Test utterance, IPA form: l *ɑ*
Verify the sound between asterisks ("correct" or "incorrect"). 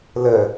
incorrect